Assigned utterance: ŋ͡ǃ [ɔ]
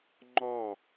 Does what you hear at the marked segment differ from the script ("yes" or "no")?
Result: no